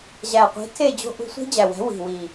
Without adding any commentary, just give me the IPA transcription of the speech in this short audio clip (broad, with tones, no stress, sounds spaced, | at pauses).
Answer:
ʑ æ˨˩ qʷ i̤˨˥ tʰ e˥˧ d͡ʑ o̤˦˥ ʔ ṳ˨˥ sʷ i̤˦˥ d͡ʑ æ˨˩ w æ̤˨˥ w i̤˨˩ w i˨˩